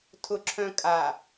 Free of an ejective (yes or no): no